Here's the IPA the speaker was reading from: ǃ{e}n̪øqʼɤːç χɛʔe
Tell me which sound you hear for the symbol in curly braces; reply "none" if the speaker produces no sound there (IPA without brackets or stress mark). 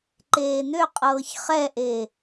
eː